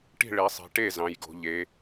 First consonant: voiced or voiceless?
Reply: voiceless